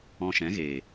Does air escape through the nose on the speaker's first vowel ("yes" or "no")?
yes